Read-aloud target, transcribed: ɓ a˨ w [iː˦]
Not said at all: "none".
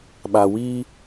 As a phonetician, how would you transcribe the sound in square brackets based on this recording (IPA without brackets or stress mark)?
iː˦